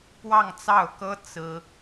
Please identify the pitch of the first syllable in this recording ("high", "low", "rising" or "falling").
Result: falling